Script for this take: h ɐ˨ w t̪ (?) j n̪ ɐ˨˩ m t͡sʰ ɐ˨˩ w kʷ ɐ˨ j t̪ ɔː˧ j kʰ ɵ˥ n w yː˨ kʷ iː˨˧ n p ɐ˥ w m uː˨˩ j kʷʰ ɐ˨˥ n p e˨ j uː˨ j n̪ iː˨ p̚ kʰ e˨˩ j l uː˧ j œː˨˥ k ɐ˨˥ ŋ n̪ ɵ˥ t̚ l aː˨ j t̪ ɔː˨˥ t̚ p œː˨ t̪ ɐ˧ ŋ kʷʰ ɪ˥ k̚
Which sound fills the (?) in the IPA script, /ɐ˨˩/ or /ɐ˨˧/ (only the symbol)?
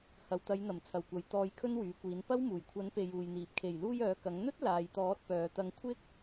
ɐ˨˧